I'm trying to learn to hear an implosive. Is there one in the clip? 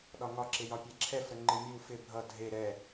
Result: yes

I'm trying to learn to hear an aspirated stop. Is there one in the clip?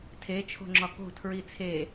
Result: yes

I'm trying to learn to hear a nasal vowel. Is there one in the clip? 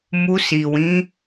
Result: yes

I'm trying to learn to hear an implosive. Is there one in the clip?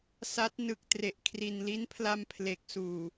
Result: no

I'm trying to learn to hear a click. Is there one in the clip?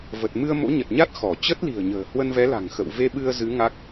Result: no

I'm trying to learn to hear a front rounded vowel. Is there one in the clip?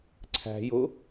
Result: no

